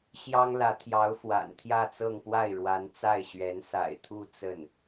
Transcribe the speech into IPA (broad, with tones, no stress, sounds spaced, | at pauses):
ɕ j ɑ˥ ŋ l ä˧˥ t̪ʰ j ɑ˧˥ ʊ̯ f w a̰˨˩ n t̪ʰ j ä˥˧ t͡s ɤ˥˧ ŋ p w a˥˩ ɪ̯ ɻ w a˧˥ n t͡s a˥˩ ɪ̯ ɕ ɥ ɛ˧˥ n s a̰˨˩ ɪ̯ t̪ʰ u˥˧ t͡s ə˥˩ n